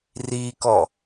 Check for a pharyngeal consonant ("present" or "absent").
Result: absent